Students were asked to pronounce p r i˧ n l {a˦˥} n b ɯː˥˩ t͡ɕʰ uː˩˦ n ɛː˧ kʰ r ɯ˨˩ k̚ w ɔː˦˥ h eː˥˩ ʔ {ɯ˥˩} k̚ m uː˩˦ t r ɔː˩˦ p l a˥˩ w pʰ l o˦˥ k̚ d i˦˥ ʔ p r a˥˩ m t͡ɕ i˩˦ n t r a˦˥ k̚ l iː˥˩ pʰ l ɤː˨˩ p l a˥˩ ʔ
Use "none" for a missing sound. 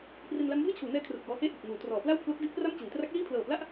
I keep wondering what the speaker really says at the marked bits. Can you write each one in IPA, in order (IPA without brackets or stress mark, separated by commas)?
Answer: a˦˥, ɯ˨˩